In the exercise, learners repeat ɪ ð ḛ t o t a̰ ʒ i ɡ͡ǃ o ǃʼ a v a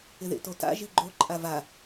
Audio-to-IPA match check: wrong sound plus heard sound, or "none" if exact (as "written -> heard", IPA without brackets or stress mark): none